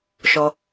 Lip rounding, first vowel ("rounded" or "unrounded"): rounded